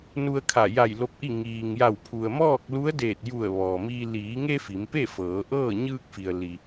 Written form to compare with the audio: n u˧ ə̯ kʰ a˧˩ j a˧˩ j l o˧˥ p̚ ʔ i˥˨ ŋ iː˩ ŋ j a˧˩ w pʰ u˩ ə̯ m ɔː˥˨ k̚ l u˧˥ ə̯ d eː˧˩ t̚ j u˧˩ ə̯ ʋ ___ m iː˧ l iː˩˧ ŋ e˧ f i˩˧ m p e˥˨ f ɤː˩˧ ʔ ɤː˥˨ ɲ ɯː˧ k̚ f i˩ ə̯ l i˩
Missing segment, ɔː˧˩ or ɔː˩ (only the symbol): ɔː˩